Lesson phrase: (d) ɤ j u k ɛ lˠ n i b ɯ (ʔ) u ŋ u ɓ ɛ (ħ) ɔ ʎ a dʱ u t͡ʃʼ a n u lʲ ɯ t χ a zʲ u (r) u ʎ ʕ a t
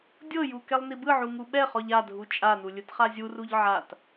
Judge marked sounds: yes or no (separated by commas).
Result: no, no, no, yes